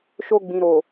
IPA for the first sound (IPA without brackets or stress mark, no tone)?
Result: ʃ